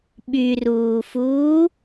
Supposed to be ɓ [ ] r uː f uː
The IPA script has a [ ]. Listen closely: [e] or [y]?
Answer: y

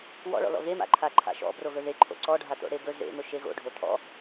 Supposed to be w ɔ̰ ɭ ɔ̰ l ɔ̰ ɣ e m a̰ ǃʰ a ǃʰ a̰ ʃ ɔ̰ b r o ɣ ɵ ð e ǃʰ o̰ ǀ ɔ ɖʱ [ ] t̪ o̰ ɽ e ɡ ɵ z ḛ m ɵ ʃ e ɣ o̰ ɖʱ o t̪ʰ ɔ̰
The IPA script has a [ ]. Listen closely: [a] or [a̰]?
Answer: a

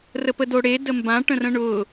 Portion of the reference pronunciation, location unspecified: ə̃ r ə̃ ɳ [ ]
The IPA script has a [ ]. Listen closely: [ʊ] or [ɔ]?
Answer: ʊ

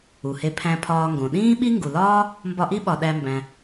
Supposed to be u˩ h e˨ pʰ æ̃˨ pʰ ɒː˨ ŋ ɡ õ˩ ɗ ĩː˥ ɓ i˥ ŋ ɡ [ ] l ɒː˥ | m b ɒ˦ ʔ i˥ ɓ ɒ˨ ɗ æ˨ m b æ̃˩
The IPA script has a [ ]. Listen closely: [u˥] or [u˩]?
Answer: u˩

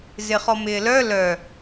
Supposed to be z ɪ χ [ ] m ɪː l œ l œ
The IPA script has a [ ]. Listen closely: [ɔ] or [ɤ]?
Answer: ɔ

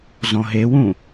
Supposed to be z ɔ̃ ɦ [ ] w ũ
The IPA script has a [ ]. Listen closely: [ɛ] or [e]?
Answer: e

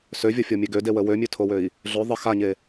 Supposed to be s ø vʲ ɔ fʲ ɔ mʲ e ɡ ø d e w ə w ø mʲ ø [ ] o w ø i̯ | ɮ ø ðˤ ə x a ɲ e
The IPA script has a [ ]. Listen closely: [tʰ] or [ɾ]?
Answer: tʰ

